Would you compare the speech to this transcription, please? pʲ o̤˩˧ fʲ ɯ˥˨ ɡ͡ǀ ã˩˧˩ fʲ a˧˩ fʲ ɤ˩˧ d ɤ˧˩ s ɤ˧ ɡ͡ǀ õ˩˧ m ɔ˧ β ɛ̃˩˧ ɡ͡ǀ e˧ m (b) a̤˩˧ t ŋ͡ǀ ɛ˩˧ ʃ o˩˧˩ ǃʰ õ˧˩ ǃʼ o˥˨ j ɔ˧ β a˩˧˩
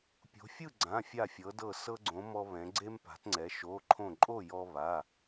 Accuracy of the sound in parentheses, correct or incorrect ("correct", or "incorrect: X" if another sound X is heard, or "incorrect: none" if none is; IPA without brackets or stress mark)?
incorrect: p